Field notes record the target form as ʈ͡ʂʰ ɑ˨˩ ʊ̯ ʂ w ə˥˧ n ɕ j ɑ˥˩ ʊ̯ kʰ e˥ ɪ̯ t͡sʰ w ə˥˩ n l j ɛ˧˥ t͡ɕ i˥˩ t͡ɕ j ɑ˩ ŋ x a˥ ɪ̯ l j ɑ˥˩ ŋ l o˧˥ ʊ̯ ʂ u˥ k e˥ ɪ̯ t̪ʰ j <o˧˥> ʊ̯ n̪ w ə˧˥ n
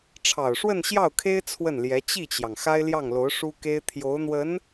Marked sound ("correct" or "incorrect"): correct